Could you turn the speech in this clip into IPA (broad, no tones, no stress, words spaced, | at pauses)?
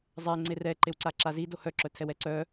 zˤɛŋ͡ǀe rɛ ǃewǀaǁazi dohœǁœtʰɛw ɛǀœ